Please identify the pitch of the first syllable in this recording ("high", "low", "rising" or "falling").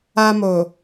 high